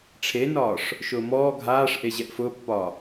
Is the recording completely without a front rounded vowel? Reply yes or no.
yes